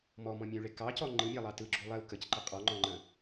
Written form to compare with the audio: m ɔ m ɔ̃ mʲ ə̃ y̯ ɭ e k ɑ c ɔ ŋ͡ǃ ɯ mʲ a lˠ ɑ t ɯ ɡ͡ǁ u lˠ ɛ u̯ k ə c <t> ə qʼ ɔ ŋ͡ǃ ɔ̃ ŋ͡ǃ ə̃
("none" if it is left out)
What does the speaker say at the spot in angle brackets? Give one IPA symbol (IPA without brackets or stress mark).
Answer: ǃ